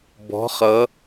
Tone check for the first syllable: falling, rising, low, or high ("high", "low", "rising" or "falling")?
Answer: rising